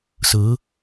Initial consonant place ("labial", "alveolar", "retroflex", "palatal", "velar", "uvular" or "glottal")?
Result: alveolar